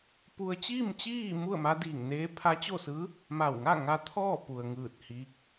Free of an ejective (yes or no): yes